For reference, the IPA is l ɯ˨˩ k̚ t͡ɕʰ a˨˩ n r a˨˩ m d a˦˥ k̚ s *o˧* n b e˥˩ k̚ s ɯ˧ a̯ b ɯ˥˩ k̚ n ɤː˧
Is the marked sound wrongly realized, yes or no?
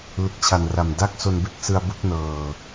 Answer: no